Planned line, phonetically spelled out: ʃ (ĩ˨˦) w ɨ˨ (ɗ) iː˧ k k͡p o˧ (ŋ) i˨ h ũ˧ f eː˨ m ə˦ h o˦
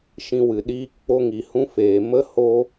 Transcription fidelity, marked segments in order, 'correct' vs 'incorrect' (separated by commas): incorrect, correct, correct